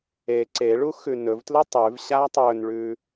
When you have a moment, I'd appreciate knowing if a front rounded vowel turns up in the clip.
no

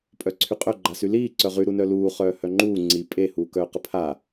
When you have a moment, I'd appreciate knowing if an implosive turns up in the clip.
no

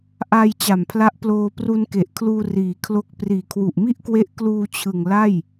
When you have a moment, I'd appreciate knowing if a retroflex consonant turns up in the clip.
no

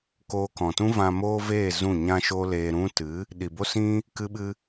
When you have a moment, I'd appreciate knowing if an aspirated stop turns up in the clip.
no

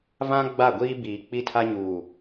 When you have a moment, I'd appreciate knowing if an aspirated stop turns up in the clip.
yes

